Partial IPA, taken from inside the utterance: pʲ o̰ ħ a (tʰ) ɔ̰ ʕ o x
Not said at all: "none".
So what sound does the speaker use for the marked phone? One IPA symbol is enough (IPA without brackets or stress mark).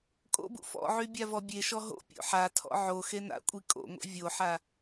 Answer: tʰ